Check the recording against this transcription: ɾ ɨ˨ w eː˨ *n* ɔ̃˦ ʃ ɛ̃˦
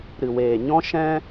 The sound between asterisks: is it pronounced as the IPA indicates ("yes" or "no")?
no